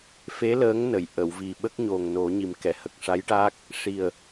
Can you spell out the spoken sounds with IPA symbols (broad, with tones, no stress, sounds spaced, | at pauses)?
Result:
f e˧˥ l əː˧˥ ŋ n ə˨˩˨ j ʔ ə˨˩˨ w v i˨˩ ɓ ə˦˥ k̚ ɲ o˨˩ ŋ n o˨˩˦ ɲ i˨˩ m k ɛ˨˩˨ h ə˨˩ k̚ ʂ a˧˥ j ʈ a˦˥ k̚ | ʂ i˨˩ ə̯